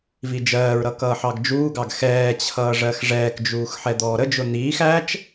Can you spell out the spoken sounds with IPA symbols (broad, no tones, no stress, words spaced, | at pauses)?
vid͡ʒɜːɹɾʌ kʌːħɑɡd͡ʒuːɡɑɡ xɛːt͡ɕʰʌː ʐɜxʐɛːkd͡ʒuːx ħɛd̪ɔːɾəd͡ʒʊ n̪iːx æt͡ʃ